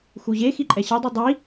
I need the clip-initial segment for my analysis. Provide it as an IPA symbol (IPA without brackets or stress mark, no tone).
x